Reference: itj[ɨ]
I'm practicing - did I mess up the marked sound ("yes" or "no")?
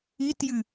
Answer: no